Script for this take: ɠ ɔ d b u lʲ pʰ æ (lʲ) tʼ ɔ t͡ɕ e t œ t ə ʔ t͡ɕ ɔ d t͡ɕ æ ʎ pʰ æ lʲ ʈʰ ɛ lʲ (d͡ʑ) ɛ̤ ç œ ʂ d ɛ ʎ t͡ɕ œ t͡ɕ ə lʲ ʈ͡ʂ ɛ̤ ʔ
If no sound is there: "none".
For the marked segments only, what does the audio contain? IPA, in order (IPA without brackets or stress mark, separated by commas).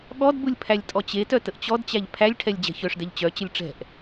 lʲ, d͡ʑ